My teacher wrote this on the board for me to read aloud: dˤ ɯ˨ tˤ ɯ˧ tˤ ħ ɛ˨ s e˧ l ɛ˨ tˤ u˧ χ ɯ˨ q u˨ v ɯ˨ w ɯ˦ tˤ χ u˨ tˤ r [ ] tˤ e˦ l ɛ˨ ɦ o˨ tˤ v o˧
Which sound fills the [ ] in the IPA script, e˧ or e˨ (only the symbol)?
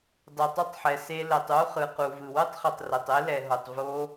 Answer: e˨